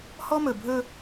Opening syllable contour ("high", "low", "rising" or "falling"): high